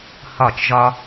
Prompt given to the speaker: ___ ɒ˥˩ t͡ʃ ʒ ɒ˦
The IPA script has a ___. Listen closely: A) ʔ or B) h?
B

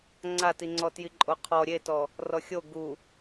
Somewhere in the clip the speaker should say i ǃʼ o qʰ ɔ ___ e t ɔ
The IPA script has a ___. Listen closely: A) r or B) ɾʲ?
B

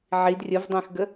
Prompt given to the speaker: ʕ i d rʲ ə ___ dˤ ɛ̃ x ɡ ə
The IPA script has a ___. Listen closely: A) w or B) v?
B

